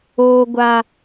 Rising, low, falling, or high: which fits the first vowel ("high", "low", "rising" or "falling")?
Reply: high